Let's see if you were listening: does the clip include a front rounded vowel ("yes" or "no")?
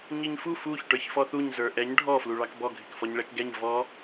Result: no